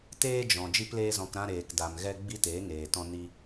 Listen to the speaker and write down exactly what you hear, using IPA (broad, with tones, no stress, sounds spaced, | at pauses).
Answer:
t eː˦ d͡ʒ ɔ̃˨ d͡ʒ i˦ p l eː˦ z ɔ̃˧ k ɾ ã˦ ɾ eː˨ k d a˨ m ɣ ɛ˦ ɡ͡b i˦ t eː˨˦ ŋ eː˨ t ɔ̃˦ n i˦